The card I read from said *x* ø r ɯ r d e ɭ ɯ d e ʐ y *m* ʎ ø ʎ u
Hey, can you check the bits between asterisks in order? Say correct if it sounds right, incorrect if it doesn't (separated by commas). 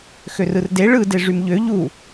correct, correct